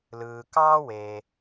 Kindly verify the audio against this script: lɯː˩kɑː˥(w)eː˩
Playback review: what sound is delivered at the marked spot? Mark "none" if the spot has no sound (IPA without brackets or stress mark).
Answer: w